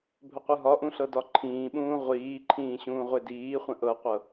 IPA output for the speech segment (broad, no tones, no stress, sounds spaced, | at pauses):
bʱ ə qʷ ɯ ɦ ɒ ʔ ũ ɬ ɤ d ɒ ǃʰ ĩː ɓ ũː ʁʷ iː ǃʰ ĩː ɕ ũː ʁʷ e d iː χʷ ə̃ ʔ ɤ qʷ ɤ